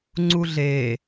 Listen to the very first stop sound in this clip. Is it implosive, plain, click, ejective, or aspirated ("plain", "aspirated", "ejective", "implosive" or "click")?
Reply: click